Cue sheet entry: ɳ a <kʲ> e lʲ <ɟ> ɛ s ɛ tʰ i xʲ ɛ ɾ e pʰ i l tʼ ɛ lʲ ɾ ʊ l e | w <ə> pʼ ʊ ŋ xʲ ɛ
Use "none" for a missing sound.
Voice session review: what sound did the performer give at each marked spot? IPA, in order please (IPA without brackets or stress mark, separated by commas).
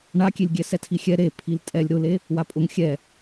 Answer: kʲ, ɡʲ, a